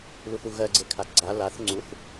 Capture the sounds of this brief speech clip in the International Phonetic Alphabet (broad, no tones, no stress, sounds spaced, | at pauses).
l u θ u ɣ ɜ ɡ͡ǀ e kʰ a ɡ͡ǀ a l a θ ŋ͡ǀ u θ